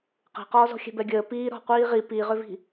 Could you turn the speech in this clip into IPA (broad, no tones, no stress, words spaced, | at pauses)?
qe̤qɔːzɔ̤ xʲɛ̤bɛɡʲəː piː ɾɔ̤ qʷiːʁi piʁʏvi̤